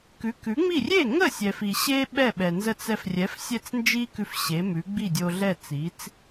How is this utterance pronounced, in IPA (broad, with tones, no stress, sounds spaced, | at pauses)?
k ʉ˩˥ k ʉ˩˥ ŋ͡m i˥˩ rʲ e˥˩ ŋ ə˥˩ sʲ ɛ˩ f i˩ ɕ e˥ ɓ ɛ˥˩ ɓ ɛ˩ n z ə˥˩ t͡s ɛ˧ f rʲ ɛ˩˥ f sʲ ɛ˥˩ t͡s n d͡ʒ i˥ k ʉ˧ f ɕ e˩˥ m ʉ˩˥ ɡ͡b i˥˩ dʲ o˧ ɮ ɛ˥˩ t͡s i˩˥ t͡s